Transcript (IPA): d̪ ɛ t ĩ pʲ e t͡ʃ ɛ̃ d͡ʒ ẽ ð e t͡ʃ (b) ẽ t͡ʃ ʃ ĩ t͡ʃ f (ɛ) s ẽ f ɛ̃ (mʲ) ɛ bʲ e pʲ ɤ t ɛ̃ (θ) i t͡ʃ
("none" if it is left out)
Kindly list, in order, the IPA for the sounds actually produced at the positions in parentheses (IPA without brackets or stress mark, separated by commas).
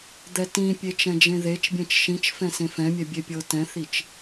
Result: bʲ, ɛ̃, mʲ, θ